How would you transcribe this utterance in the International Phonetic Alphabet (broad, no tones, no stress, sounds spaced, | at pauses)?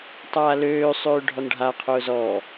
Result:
tˤ aː l øː sˤ øː ɖʱ ɔ n ɖʱ a qʰ ʊː z ɔː